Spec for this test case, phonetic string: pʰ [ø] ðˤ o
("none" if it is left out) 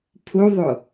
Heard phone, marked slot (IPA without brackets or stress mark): u